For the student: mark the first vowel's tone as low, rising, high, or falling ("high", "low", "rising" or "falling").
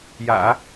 low